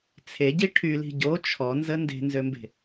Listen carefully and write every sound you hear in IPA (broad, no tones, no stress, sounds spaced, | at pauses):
t͡sʰ e ɟ i ʈʰ y l i̤ ɟ o t͡ʃʰ ɔ n z ə n d e̤ n z ø m b e̤